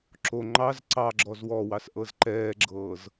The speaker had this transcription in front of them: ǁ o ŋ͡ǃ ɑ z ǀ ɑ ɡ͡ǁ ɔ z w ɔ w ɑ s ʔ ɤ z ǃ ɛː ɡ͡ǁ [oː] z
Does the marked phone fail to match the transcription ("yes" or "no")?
yes